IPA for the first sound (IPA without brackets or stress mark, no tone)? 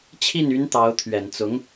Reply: t͡ɕʰ